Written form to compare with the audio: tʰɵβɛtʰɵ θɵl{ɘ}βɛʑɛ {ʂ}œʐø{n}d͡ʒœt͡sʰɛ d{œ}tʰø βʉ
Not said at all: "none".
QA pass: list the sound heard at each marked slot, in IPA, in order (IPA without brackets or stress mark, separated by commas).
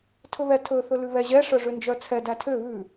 ʉ, ʂ, n, æ